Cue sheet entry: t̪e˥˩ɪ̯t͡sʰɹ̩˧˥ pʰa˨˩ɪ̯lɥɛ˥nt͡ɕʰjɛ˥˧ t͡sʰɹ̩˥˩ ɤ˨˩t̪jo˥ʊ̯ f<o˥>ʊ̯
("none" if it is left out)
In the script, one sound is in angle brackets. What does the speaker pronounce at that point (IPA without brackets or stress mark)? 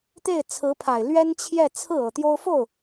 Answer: o˥˩